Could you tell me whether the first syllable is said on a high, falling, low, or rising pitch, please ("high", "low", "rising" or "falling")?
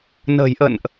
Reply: low